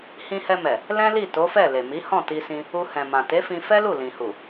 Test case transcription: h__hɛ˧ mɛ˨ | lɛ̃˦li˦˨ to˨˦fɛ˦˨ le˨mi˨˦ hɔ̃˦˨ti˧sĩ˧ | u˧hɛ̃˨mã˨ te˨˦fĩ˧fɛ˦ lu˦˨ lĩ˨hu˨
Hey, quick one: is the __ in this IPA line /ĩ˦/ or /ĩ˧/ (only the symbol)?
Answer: ĩ˧